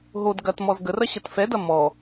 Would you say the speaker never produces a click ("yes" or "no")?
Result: yes